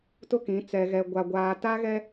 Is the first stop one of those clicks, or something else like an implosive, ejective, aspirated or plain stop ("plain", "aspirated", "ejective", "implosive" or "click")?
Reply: plain